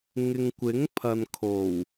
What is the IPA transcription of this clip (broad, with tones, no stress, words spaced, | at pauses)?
ŋɪ˨ŋkʷɪ˨˥ŋpʰɐ˨nkʰo˨˩w